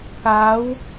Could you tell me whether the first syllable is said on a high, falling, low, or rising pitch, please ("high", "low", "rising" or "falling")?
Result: rising